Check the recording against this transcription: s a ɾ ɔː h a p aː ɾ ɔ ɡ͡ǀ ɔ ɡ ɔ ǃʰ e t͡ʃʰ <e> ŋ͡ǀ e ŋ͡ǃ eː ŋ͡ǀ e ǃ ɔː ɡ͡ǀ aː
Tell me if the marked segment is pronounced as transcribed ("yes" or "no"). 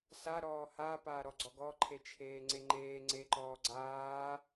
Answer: no